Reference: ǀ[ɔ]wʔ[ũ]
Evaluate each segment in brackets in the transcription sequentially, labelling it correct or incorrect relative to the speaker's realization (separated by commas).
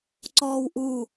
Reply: incorrect, incorrect